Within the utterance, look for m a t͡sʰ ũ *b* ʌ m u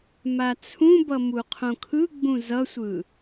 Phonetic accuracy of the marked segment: correct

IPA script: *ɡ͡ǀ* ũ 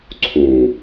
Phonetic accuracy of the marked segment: incorrect: ǀʰ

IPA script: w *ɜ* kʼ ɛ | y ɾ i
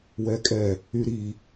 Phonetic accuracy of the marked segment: incorrect: ɛ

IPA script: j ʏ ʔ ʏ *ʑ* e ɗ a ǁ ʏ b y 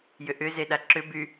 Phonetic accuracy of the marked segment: incorrect: z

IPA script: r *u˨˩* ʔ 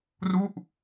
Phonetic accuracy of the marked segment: incorrect: u˥˩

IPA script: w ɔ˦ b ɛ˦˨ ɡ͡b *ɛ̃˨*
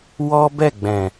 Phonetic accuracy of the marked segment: correct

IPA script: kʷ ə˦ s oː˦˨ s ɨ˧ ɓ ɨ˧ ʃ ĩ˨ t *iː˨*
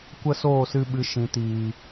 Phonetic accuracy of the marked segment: correct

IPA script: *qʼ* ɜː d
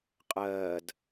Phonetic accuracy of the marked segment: correct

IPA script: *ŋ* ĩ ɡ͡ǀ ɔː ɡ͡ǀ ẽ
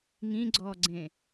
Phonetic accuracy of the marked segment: correct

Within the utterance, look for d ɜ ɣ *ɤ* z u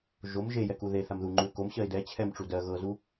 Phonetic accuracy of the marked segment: correct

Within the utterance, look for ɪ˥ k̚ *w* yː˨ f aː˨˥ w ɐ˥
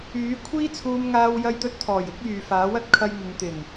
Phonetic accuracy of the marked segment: incorrect: j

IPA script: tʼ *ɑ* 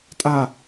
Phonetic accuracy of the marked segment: incorrect: a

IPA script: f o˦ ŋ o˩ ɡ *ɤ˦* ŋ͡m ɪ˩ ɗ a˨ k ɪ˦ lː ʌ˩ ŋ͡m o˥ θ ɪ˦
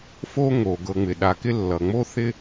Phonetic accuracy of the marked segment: incorrect: ɤ˨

